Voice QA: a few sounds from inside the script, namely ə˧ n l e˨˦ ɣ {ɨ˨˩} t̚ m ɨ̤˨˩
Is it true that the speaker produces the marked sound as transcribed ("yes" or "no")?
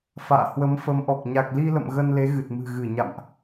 yes